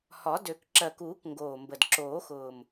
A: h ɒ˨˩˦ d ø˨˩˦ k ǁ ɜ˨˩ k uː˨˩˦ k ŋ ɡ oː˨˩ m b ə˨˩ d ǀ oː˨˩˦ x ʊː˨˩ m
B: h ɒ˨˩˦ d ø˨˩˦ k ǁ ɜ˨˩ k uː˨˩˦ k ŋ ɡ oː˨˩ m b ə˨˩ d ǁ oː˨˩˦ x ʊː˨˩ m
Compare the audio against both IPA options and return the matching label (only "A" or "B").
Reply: B